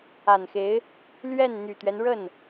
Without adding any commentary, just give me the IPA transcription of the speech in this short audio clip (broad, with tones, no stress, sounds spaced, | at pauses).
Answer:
a˨˩ n x e˧˥ ɪ̯ | l ɥ ɛ˥˩ n n̪ y˨˩ t̪ ɥ ɛ˦ n ɻ ə˥˩ n